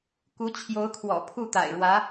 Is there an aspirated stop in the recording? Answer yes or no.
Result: yes